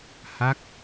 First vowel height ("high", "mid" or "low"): low